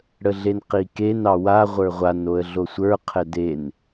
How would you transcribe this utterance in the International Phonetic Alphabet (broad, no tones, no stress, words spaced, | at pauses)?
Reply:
ɽəɮenqiken ɑwa ʁʷə˞ʁʷan oə̯ɮosʷə˞ qʰɛden